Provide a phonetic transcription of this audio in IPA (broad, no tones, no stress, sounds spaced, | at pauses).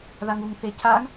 ð a ŋ u ŋ θ e cʰ a ŋ